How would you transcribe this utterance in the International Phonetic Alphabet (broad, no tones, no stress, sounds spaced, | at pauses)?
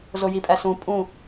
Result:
z o j i pʼ æ s ũ pʼ ũ